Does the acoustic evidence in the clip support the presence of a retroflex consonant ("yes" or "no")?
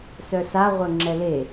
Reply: no